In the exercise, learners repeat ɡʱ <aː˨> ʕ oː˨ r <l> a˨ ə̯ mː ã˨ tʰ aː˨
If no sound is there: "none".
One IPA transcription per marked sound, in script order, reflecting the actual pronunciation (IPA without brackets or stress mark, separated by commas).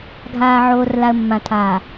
aː˨, l